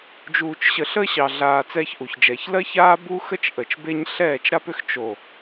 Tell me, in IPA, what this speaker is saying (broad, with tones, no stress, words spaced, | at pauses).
d͡ʒuː˨t͡ʃɕə˨ ɬə˦ɕɑ˨ɮaː˨ t͡sɛː˦çʔu˨çd͡ʒɛː˨ç lɜ˦çaː˦ bu˦xə˦t͡ʃ ʔə˨t͡ʃbe˦ɲ ɬɛː˦˨t͡ʃɾa˦pʏ˦x t͡ʃo˨